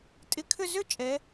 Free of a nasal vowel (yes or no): yes